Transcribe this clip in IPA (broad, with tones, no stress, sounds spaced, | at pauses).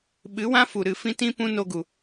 ɓ ɨ˨˦ w ã˦ f u˨ ɾ ɨ˧ f ĩ˦ t ĩ˦ p ũ˦ n o˦ ɡ u˨